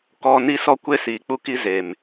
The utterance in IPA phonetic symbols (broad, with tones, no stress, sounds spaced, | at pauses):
k ɔ˨ n i˦ s ɔ˦ kʷ e˦ s iː˨ k͡p u˦ k i˦ z e˨ m